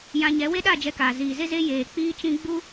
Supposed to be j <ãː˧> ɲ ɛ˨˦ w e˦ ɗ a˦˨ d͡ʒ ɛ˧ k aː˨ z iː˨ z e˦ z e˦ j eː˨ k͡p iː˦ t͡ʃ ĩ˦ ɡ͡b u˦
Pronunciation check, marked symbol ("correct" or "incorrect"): incorrect